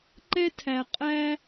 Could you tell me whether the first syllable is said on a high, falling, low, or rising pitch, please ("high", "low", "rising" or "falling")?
high